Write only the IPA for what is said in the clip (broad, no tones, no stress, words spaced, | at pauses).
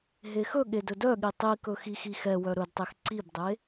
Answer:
ɦexɵɠe dɵdœɠi tˤikɵ xixixɛwœ ɾɵdtˤex ǀibdˤe